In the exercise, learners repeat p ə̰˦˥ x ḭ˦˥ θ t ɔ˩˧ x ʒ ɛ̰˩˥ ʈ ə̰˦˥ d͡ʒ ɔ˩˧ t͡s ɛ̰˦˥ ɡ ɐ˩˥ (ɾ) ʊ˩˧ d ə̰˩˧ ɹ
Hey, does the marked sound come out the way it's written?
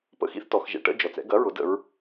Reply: no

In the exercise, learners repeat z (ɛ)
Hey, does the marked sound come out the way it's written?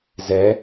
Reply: yes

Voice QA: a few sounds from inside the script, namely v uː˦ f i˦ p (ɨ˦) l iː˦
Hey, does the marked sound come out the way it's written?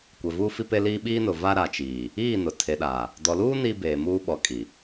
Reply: no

